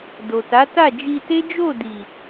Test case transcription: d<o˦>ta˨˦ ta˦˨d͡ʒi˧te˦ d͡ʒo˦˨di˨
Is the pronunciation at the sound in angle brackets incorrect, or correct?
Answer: incorrect